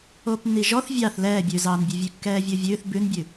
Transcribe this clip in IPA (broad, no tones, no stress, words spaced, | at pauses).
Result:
oːpnːiʒɔθ vʲɑθ lɛːbʲʉːzɑːnbʲʉ vʲʉkːɛːvʲovʲʉːθ bʉnbʲʉ